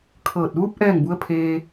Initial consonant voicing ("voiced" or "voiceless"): voiceless